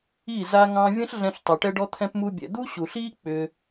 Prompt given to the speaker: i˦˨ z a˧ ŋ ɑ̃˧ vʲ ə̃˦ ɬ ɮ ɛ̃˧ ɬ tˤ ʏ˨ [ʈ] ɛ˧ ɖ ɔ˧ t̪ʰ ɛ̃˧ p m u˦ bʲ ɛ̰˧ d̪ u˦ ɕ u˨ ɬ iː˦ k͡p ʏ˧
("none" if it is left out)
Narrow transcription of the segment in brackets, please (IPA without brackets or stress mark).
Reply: ʈ